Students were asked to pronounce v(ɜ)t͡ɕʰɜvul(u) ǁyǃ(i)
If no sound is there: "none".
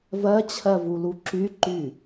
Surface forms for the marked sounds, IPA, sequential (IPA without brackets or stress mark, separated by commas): ɜ, u, y